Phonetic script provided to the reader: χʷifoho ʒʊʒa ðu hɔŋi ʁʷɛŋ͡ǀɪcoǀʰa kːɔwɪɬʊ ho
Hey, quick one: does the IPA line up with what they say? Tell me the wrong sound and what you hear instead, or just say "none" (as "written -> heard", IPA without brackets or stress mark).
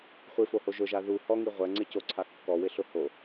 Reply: none